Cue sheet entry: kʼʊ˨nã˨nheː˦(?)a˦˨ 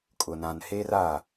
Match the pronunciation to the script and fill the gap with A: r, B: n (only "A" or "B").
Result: A